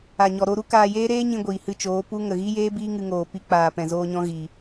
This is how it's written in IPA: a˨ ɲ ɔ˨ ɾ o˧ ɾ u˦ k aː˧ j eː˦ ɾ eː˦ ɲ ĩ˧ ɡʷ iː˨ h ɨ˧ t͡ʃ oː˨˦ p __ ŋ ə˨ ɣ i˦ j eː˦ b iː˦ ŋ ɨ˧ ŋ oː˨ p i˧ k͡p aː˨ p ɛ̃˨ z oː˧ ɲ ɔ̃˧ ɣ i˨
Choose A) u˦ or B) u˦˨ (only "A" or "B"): A